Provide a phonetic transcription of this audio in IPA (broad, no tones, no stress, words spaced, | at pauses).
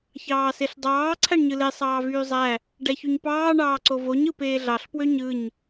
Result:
çɑːseɬdˤɑː ǀʰæɳɲɯle sˤɑːvyːzˤæ | ɖæçuɲpɑː ɳɑːǀovoɲ ɯpeːɮɑɬ pwøɲɯɲ